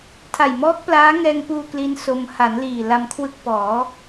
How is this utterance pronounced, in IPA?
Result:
tʰa˨˩jmɔː˦˥k̚plaː˦˥ ŋɛː˧ŋpuː˧ kli˦˥nso˧m ha˩˦n liː˨˩ la˧mkʰwɯ˦˥k̚ pɔː˩˦

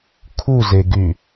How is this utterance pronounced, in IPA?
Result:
kʰuzeɡy

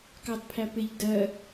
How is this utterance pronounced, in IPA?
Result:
kɑdpʰæpɪʎ dɜ

